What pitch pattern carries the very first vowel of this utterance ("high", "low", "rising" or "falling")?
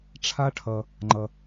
high